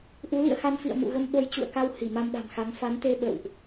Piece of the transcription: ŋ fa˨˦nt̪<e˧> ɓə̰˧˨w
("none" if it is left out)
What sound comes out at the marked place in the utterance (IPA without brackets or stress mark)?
e˧